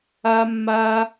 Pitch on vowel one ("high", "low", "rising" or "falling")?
high